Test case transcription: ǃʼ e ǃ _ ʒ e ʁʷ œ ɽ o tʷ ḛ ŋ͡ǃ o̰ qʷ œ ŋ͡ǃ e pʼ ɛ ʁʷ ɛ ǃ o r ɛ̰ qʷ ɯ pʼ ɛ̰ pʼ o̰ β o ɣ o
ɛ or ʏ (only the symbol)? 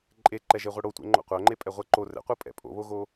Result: ɛ